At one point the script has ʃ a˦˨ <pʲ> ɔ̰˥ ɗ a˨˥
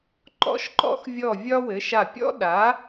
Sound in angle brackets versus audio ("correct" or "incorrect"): correct